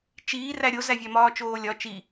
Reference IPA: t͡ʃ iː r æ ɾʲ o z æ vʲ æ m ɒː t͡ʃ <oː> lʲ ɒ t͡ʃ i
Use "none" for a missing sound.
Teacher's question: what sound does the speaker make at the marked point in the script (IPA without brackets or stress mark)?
oː